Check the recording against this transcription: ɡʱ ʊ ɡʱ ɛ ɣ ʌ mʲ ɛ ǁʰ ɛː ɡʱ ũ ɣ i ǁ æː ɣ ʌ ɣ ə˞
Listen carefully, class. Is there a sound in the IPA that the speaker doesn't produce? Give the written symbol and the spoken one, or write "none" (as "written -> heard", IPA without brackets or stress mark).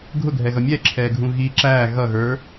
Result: none